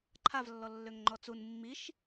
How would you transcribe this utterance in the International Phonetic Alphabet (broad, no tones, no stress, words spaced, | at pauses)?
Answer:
ǃʰavlːɔ lːøŋŋ͡ǃɔt͡sun mːiʃ